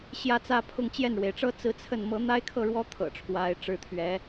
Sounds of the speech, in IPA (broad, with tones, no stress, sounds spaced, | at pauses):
ɕ j ä˥˩ t͡s ä˥ pʰ ʊ˥˧ ŋ t͡ɕ j ɛ˥˩ n ɻ w e˩ ɪ̯ ʈ͡ʂ ɤ˥ t͡s ɹ̩˥˧ t͡sʰ ə˥˩ n m ɤ˧˥ n̪ a˥ ɪ̯ kʰ ɤ˥˩ ɻ w ɔ˥ t̪ʰ ɤ̰˨˩ ʈ͡ʂʰ w a˧˥ ɪ̯ ʈ͡ʂ ɻ̩˥˩ t̪ʰ ɥ ɛ˧˥